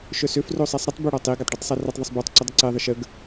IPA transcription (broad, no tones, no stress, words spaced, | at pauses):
ʃœsøf rosˤɛsˤɾətˤ bøɽɔtˤi ɡatˤɖœtˤsˤɛrɛtˤ ðˤəsˤbotˤ ǀudˤəǀe ðˤəʃəɡ